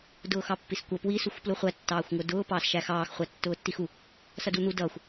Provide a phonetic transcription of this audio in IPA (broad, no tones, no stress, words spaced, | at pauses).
dʊːxɑpːiskʷʌ pwi suxʷpluχʷæ tːɑːxʷŋʊdʊː pɑːsʃæxɑːx χʷætːʊːtːixu | sʌdun̪u dʌːxʷ